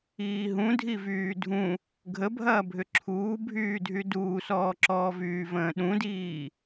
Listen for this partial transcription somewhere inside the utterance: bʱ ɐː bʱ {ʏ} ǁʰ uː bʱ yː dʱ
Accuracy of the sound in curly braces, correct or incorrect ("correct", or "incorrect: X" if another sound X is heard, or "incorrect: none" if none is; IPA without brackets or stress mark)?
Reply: correct